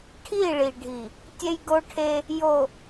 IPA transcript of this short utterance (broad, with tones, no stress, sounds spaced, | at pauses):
ʈʰ i˦˨ ɭ i˨ ɖʱ i˨ | tʲ e˦ j ɡ o˦ ʈʰ e˦ | j o˨